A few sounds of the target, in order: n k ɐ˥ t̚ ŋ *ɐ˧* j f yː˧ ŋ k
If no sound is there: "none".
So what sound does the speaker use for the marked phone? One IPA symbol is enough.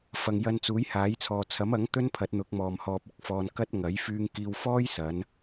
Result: ɐ˨˥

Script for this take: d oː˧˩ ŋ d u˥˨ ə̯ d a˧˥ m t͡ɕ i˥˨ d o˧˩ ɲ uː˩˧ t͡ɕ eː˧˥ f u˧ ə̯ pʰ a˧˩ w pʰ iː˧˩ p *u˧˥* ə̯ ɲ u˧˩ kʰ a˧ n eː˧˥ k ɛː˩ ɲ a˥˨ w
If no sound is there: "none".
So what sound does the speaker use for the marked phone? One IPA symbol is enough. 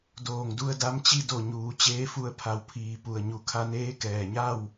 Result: u˧˩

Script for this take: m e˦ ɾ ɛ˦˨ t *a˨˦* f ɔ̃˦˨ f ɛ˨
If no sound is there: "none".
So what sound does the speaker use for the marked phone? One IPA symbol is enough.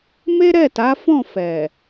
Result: a˨˦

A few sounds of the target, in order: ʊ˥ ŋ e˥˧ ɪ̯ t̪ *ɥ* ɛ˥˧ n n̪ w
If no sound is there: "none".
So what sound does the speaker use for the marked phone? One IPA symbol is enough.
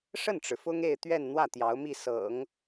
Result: ɥ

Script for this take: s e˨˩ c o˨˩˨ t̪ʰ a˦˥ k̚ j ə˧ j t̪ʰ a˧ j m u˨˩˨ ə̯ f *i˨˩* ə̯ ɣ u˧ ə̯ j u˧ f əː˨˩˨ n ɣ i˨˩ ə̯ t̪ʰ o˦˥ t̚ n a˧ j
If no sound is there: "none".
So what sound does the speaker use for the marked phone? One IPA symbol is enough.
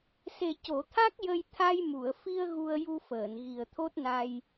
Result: i˧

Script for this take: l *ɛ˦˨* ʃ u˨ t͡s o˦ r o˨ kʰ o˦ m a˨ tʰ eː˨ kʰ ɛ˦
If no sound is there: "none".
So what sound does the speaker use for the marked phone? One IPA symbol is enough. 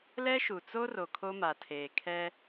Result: ɛ˦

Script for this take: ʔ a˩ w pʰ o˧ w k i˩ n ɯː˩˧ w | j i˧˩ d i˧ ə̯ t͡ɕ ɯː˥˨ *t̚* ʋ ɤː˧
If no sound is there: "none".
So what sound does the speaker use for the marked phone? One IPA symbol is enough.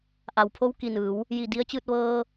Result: t̚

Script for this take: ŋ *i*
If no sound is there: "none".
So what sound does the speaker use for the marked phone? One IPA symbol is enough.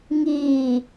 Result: iː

